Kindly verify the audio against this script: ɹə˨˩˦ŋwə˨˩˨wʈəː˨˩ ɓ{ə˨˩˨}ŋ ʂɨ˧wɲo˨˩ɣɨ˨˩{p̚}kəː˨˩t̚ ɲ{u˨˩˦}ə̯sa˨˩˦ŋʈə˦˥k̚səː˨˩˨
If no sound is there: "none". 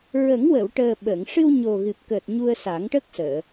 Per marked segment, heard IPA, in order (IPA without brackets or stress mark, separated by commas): ə˨˩˨, p̚, u˧